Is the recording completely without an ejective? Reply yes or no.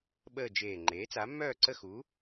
yes